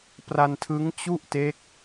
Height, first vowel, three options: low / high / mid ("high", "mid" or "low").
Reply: low